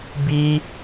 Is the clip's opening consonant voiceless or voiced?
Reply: voiced